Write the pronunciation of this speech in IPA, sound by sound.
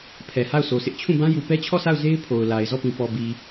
pʰ ɛ˨ h a˦˨ ʊ̯ s o˨ s ɪ˦ ʔ t͡ɕʰ ũ˦˨ b ã˦ j u˨ p ɛ˦ t͡ɕʰ ɔ˦˨ s a˦˨ ʊ̯ z e˦ ɪ̯ pʰ o˨ ʊ̯ l a˨ ɪ̯ z ɔ˦˨ p ĩ˨ p ɔ˨ b i˨

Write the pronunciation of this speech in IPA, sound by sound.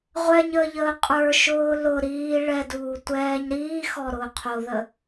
ʁʷ ɛ ɲ əː ʎ əː qʼ ə˞ ʃ ʊː l ʊ ɾ iː ɭ ɛ d uː tʷ ɛː ɲ ɾ iː x ɔ ɾ ʊː qʰ o ð ə

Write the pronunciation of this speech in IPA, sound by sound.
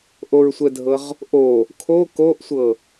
ʔ o ɹ sʷ ɛ dʱ ɤ ʁ | ʔ o | kʰ o k o ʔ sʷ ɤ

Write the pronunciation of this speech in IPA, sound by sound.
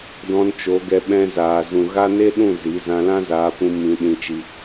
d ɔ̃˧ n t͡ʃ o˨˦ ɡ ɛ˧ ɓ ɛ̃˧ z aː˨ z ũ˨ ɣ a˦ n e˦ ɗ ũ˦˨ z i˨˦ z ã˧ l ã˦ z aː˧ p ũ˧ m ĩ˧ ɗ ĩ˧ t͡ʃ i˧

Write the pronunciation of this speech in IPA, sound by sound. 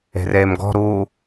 e̤ r eː m ɡ ɔ̤ ɾ uː

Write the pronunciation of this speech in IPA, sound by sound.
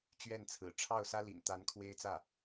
t͡ɕ ɥ ɛ˥˩ n t͡sʰ ɹ̩˨˩ ʈ͡ʂʰ ɑ˥˩ ʊ̯ s ä˥ l ḭ˨˩ n t̪ a˧˥ n kʰ w e˥ ɪ̯ t͡s ä˥˩

